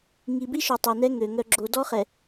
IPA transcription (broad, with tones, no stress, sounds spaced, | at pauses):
ŋ i˨ b i˦ ʃ o˨ tˤ ø˨ n ɛ˦ ŋ ø˨ ŋ œ˨ ɡ͡ǁ o˨ d ɔ˦ χ ɛ˨